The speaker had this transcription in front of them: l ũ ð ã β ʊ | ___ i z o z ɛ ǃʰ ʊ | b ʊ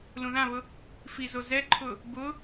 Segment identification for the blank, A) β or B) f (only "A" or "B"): B